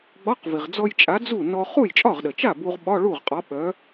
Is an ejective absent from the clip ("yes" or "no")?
no